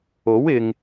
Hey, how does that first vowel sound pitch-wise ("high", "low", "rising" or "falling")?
rising